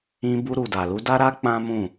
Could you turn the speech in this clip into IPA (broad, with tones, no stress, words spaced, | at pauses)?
ĩ˧ bu˧ɾu˨ da˨lu˧da˦ɾa˦ k͡pã˦mũ˦˨